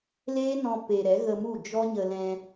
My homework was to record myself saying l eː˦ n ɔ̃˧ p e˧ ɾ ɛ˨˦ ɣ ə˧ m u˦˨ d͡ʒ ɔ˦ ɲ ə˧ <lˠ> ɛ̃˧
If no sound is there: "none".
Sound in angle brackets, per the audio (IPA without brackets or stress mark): l